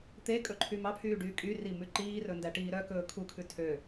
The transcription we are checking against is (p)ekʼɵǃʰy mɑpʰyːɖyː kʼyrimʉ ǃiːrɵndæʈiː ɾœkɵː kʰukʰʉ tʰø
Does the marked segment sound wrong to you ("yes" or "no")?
yes